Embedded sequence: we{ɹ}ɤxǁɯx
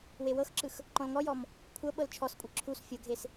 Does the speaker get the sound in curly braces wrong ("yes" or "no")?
yes